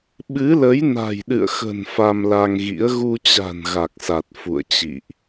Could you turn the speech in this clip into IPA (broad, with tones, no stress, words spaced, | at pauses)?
ɓɨ˨˦lə˨˦j na̤˨˩jɗɨ̰˧˨ə̯xə̤˨˩n fa˧mla˧ŋɣḭ˧˥ə̯ ɣu˧t͡ɕa̤˨˩n ɣa˨˩k̚sa˨˩t̚ fṵ˧˨ə̯t͡ɕḭ˧˨ʔ